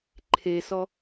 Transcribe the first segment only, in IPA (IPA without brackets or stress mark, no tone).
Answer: ǃʰ